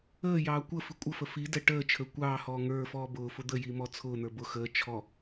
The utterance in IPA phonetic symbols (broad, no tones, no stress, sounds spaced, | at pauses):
əː j ɑː kʷ ə f i kʷʼ ə f ə f i d ɛ ʈ əː t͡ʃʰ ə˞ kʷ ɑː h ɔː ŋ ə˞ f ɔː b ʊː f ʊ d̪ ə j i m ɔ t͡sʰ ʊː n̪ ə˞ b ʊ x əː t͡ʃʰ ɔ